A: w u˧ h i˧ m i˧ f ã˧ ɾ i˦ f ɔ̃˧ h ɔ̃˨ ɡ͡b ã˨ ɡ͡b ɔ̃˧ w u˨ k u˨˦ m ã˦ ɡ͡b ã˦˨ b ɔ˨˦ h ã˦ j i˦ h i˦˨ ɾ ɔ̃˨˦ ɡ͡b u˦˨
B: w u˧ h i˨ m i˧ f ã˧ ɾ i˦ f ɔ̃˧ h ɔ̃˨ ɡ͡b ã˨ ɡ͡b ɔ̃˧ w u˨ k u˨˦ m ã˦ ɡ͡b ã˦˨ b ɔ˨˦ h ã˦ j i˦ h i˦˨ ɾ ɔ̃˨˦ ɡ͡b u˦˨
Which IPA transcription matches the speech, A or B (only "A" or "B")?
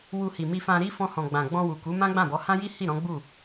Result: B